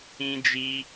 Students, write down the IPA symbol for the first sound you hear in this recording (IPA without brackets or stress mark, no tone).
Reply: ĩ